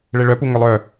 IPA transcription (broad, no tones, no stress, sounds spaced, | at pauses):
ɭ e ɭ œ p u ŋ œ lˠ œ